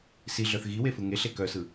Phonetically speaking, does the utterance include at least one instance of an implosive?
no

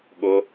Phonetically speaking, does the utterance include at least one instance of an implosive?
yes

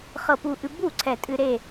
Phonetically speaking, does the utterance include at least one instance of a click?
yes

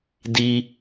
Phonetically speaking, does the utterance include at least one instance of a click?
no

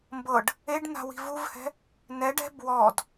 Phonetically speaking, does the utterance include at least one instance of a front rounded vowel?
no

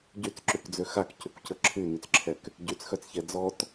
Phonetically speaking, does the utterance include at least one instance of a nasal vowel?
no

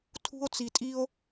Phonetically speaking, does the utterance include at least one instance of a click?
no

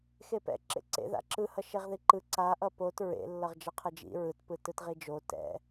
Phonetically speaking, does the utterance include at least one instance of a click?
yes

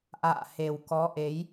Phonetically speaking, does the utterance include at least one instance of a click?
no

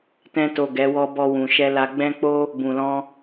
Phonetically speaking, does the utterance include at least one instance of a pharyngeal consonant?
no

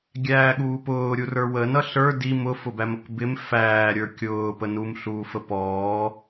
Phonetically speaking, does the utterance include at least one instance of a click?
no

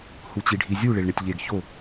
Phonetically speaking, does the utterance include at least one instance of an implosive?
no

